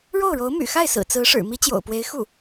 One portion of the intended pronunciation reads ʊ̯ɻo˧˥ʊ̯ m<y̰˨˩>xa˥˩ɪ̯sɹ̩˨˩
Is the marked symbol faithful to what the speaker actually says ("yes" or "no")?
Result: yes